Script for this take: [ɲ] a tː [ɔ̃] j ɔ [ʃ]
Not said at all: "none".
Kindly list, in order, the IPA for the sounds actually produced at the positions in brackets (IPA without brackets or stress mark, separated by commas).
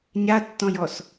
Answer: ɲ, ɔ̃, s